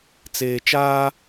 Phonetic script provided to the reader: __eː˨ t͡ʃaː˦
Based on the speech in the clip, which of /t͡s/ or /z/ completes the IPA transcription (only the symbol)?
t͡s